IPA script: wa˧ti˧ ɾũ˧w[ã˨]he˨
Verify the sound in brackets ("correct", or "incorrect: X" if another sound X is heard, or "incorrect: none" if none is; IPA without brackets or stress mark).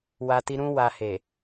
incorrect: a˨